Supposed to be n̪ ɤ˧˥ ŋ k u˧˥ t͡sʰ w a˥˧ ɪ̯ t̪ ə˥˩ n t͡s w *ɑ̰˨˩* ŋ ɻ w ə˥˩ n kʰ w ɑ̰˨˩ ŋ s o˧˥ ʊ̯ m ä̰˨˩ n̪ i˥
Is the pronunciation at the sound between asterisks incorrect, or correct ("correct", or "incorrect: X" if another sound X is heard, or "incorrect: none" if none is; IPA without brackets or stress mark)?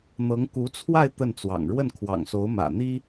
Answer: correct